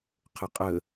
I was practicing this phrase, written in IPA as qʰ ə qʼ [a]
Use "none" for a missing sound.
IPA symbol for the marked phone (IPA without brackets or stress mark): ə